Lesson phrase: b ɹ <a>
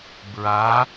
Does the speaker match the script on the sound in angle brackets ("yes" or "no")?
yes